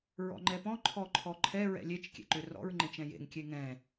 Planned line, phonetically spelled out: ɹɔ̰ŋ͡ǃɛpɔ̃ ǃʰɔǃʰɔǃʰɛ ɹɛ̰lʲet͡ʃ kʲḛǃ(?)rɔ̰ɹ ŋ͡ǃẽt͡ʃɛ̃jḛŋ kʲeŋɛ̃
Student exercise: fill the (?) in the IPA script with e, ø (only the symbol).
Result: ø